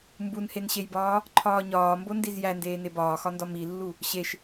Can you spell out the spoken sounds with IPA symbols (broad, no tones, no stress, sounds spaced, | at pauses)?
m b u n h e n ɕ e j b ɒː | ǃʰ ɒː ɲ ɒː m b o n d i z j æ n d eː n e b ɒː x ɒ n d ɒ m i lː u | ɕ e ʃ